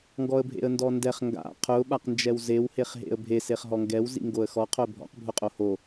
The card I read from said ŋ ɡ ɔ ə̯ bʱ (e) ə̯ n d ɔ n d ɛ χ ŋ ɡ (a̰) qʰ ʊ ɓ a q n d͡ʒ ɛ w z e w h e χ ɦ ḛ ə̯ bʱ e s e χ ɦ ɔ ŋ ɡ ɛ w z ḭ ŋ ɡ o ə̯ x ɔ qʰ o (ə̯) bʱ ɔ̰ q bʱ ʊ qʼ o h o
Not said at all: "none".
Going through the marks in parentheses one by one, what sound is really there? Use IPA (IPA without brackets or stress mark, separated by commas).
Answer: ḛ, a̰, ə̯